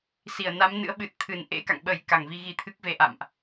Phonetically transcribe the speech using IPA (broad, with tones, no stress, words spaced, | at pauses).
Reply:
si˧˩ə̯na˨˦mnɨ̰˧˥ə̯ ɓɨ˨˩t̚t̪ʰɨ˧˩n ʔḛ˧˥ka̰˧˨ŋ ɓə˧˩j ka˧˩ŋvi˧ ɣi˨˦t̪ʰɨ˦˥k̚ve˧ ʔa̰˧˨mʔ